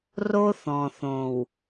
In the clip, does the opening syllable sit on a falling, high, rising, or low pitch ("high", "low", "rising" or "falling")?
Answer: high